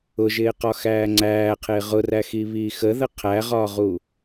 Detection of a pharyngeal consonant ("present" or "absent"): absent